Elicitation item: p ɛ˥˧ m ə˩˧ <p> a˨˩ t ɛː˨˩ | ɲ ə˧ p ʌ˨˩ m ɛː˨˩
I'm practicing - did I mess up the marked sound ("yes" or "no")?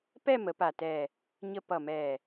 no